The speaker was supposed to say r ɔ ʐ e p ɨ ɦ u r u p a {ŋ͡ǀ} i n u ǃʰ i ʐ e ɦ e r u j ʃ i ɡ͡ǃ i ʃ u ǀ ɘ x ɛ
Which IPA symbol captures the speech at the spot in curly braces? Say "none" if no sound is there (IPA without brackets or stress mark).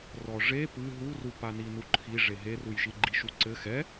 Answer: n